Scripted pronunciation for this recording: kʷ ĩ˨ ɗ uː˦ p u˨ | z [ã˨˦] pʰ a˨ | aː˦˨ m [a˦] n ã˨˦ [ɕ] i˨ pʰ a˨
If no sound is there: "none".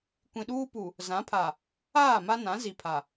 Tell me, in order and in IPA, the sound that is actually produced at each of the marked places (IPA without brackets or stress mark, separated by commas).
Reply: ã˨˦, a˦, z